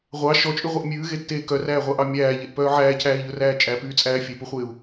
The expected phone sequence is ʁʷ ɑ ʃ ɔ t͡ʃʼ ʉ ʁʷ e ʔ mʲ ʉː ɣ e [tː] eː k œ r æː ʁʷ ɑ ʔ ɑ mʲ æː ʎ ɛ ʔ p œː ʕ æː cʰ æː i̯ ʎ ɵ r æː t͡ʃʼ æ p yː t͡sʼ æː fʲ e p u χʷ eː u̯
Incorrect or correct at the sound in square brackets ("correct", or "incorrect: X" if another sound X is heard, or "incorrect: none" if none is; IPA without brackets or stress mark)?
correct